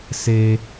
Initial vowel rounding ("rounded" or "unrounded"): unrounded